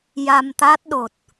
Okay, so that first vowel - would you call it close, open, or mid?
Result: open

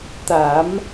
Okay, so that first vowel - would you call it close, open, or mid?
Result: open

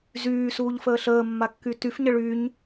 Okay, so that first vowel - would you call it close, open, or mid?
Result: close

